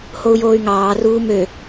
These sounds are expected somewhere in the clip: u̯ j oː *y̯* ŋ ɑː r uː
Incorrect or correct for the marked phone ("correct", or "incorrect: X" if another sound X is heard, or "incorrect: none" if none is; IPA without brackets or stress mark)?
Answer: correct